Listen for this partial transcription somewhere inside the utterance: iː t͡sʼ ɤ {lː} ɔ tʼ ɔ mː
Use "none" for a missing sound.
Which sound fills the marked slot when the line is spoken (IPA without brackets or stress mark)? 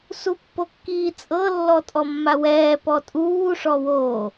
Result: lː